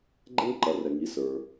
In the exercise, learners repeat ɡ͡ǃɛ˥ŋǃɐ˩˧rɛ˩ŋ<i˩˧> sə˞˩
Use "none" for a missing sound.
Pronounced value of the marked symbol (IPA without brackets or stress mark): i˩˧